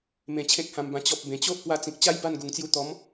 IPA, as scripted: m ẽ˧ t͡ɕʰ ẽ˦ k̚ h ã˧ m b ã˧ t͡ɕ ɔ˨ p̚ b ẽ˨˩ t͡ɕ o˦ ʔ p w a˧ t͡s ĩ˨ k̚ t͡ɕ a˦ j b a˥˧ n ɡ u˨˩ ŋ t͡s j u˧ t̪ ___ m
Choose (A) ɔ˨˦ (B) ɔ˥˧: A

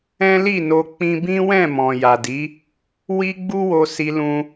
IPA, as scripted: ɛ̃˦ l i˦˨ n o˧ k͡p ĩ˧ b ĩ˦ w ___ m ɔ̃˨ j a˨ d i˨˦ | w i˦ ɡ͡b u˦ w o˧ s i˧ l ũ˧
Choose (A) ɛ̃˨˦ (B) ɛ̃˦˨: B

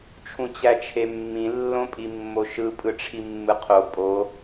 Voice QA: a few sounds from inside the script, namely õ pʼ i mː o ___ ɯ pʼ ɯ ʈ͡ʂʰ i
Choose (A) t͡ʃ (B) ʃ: B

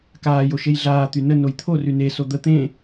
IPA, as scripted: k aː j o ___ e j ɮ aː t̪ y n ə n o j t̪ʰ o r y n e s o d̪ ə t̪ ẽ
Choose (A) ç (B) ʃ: B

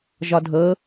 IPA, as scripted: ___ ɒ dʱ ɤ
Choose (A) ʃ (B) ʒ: B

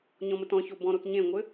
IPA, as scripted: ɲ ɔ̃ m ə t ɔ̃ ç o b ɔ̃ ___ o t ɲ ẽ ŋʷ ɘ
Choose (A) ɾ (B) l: A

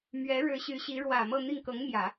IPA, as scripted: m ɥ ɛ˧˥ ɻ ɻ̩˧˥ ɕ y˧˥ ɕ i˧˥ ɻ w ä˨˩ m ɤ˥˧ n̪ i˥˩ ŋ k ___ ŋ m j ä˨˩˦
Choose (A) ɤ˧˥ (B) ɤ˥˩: A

